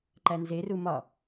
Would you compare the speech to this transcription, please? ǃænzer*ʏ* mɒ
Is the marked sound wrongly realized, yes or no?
yes